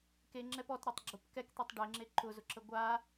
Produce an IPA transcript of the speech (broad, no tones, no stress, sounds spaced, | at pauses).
k e ŋ͡ǁ ɛ p ɔ t ɾ e tˤ ɡ͡ǁ ʊ p k ɛ k t̪ i tˤ ɖ e ŋ͡ǁ e ǃ ʊ z ʊ ǁ ə ɡʷ a